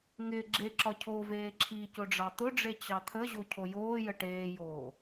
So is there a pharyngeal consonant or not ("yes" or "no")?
no